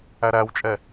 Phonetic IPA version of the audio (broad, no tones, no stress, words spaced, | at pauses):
æɾæwt͡ʃʼɛ